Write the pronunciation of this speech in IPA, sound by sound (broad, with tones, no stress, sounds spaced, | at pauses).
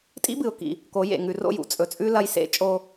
tʼ ḭ˦ b ɨ˨ ʊ̯ k ḭ˨ | k o˨˦ j ḛ˨ ŋ ʉ˨ r o̰˦˨ j ṵ˨ t͡sʼ ɵ˨ t͡sʼ ʉ˦ l ɐ˦ j s ḛ˦ t͡ʃʼ o˦